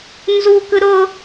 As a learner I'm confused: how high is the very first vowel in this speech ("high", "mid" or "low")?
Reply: high